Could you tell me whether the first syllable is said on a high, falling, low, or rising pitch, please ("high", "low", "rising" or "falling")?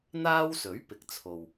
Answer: high